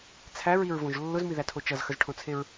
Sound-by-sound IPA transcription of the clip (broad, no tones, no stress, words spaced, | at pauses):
t͡sʰæɹiɹvõʒ lːʊzmiðætʰo t͡ʃʌzxəzʈʰõt͡sʰeɹ